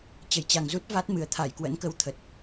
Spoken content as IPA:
t͡ɕ ə˧˩ j t͡ɕ a˨˩ ŋ z u˦˥ t̚ v a˦˥ t̚ m ɨ˨˩ ə̯ t̪ʰ a˧˩ j k w ə̰˧˥ n k ə˧ w t̪ʰ ə˨˩ t̚

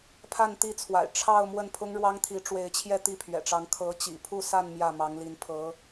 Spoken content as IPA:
pʰ a˥˧ n t̪ i˥˩ t͡sʰ w a̰˨˩ ɪ̯ ʈ͡ʂʰ ɑ˥˧ ʊ̯ m w ə˥˩ n pʰ ʊ˥ ŋ ɻ w ɑ˥ ŋ t̪ʰ i˧˥ ʈ͡ʂ w e˧˥ ɪ̯ t͡ɕʰ j ɛ˥˧ t̪ i˥˩ pʰ ɥ ɛ̰˨˩ ʈ͡ʂ ɑ˧˥ ŋ kʰ ɤ˧˥ t͡ɕ ḭ˨˩ pʰ u˥˧ s a˥˧ n m j ä˥˩ m ɑ˧˥ ŋ l i˧˥ n pʰ ɤ˧˥

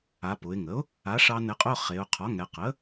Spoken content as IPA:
a˩˧ p ʊ˩˧ ɪ̯ ŋ ə˩˥ ʊ̯ | a˩˥ ʂ ɑ˧ n ɘ˩˥ qʼ ʊ˧˥˧ χ e˩˧ ʊ̯ qʰ ɒ˩˥ ŋ ɛ˩˧ q ə˩˥

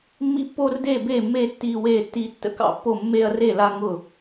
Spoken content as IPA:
mː ḭ˦ pː oː˦ r d eː˥˨ b eː˥˨ mː eː˦ tː iː˦ w eː˥˨ tː iː˦ tː ə̰˦ k ɑ̰˥˨ pː o˥˨ mː eː˦ ɐ̯ r e˥˨ l a˦ ŋ ʊ˥˨

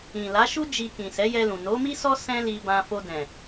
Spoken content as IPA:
ĩ˨ l a˨˦ ʃ u˦ d͡ʒ i˧ k ĩ˨ s ɛ˨˦ j ɛ˧ l ũ˨ n o˨˦ m i˦ s ɔ˦ s ɛ̃˦ l i˧ b ã˧ f o˧ d ɛ̃˨

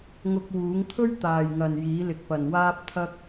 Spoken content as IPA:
ŋ ʊ˧ k̚ w uː˨˥ ŋ t̪ʰ ɵ˥ ɥ t̪ aː˨ j ŋ ɐ˨ n j iː˨˥ l ɪ˨ k̚ p ɐ˨ n w aː˧ p̚ t̪ʰ ɐ˧ k̚

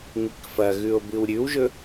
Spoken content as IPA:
ŋ i k f ɐ ɣ ʉ o̯ b ɨ w ɾʲ ʉ w ʒ ɵ

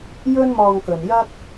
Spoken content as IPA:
j ɵ˥ n m ɔː˧ ŋ k ɵ˨ n j ɐ˥ k̚

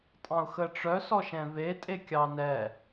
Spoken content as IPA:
tʼ ɑ̃ ʊ̯ x ə ʈ͡ʂ œ s ɔ ʃ ɛ̃ v e tʼ e kʲ ɑ n ɛ

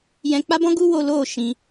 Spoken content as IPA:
j ɛ̃˧ k͡p a˦ b ɔ̃˦ ɡ u˦ w o˧ l oː˦˨ ʃ ĩ˧

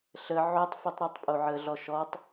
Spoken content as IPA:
ɬ ə ʕ o tˤ f i tˤ ɾ i tˤ pʼ o ʕ ə ɮ ɔ ʃ ɔ tˤ

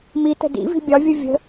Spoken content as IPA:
m i t ə̤ d ḭ v i̤ bʲ ɒ vʲ ɯ vʲ ə̤

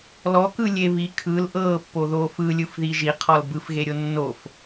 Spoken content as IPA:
l ɔ k ɯ lʲ e β i kʰ ɯ l ʔ ɤː pː o ð oː f ɯ lʲ ɯ f ð i ʒ i qʰ ɔ l b ɯ f ɣ e ɾʲ o nː o f

